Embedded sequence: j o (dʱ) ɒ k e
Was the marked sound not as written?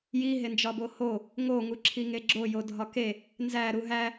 no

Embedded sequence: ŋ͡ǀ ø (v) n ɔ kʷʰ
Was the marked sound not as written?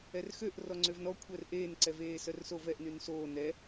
no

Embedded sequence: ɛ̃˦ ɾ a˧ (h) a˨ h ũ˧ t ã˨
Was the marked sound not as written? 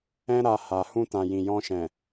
no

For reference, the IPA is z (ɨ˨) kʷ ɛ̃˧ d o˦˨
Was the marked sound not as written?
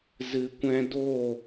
no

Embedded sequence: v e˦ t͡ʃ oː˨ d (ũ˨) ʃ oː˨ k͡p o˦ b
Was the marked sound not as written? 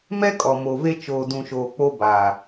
no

